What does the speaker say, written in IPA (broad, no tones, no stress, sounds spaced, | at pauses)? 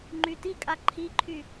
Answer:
ŋ͡ǃ y t i kʼ a ǃʰ i ǃʰ y